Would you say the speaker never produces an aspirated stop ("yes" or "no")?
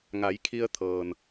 no